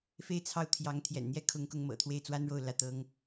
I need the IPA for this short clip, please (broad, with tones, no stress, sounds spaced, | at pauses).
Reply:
f e˥˩ ɪ̯ t͡sʰ ɑ˥ ʊ̯ t̪ʰ j ɑ˧˥ ŋ t̪ʰ j ɛ̰˨˩ n n̪ j ɛ˥ kʰ ʊ˧˥ ŋ k ʊ˧˥ ŋ m ɤ̰˨˩ t̪ʰ w e˥˩ ɪ̯ t͡s w a˥ n ɻ o˥˧ ʊ̯ l ä˥˩ t̪ ɤ˥ ŋ